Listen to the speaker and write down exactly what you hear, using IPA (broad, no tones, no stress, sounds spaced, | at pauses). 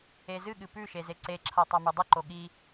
e z ɨ ɠ ɨ p ʉ ʃ e z e ǀ e ǁʰ a tˤ a m ʉ dˤ ɨ ǃ o ɠ i